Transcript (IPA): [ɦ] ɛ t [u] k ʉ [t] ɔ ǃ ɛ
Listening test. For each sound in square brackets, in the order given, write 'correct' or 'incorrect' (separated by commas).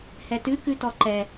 incorrect, incorrect, correct